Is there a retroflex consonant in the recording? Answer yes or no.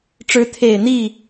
yes